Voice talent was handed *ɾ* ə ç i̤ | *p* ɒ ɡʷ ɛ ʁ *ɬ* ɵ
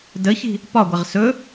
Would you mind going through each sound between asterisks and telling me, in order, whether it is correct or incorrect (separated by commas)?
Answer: incorrect, correct, incorrect